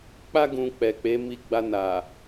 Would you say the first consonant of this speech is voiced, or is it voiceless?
voiceless